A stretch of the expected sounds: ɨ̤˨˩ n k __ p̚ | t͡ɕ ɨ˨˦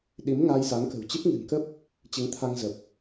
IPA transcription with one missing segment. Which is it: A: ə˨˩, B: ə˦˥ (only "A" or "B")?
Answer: B